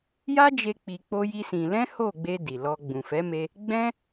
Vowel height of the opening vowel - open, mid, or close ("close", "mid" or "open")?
open